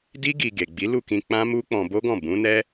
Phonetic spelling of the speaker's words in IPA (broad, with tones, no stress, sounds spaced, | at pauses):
d i˦ ɡ i˧ ɡ e˨ ɡ͡b i˨˦ l u˦˨ k ĩ˧ k͡p ã˦ m u˦ k͡p ɔ̃˧ b o˦ ɡ ɔ̃˦˨ b ũ˨˦ n ɛ˦